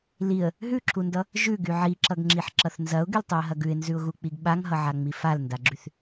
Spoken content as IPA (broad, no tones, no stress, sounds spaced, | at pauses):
l i ə̯ | ɦ ʉ ǁʰ u n d ʌ | ʒ ʉ ɡ y ʕ i ǁ ʌ ɡ ŋ͡ǁ i ħ ǁ ʌ θ n z ɐ ʊ̯ ɡ y l tˤ ʉ ə̯ ɦ ɐ ɡ ʉ ɪ̯ n z ʉ ʊ̯ ɣ u k͡p i ɡ ɓ a ŋ ɦ ʌ ʕ a ŋ͡m i f a l n d a ɡ͡ǁ y θ